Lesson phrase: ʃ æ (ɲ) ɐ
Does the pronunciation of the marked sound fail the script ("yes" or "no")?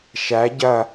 yes